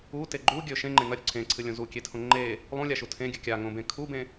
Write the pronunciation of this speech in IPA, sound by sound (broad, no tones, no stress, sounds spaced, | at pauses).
u t e ɡ͡ǃ u ɡʲ ɵ ʃ ẽ ŋ͡ǃ ẽ ŋ ɐ ɾʲ ʉ ǀʰ ẽ ǀʰ ɨ lʲ õ z u kʲ e tʰ õ ŋ͡ǃ e | lˠ ũ lʲ a ʃ u tʰ ẽ ɡʲ ɨ kʲ a ŋ õ b ẽ kʰ u b ẽ